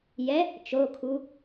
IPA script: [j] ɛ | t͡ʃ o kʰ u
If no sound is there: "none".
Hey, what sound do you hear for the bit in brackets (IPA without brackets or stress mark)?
j